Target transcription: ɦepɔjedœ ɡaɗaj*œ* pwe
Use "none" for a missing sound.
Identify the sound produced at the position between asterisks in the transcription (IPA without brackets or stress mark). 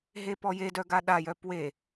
œ